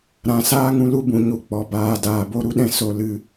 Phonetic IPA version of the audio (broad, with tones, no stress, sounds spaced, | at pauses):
ɾ ã˨ s aː˦ ŋ ũ˧ l u˦ b ũ˨ ɲ u˧ k͡p ɔ˨ b aː˨ d aː˨ b o˦ ɾ u˦ ɗ ɛ̃˦ s o˧ l ɨ˧